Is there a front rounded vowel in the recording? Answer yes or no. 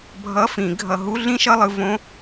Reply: no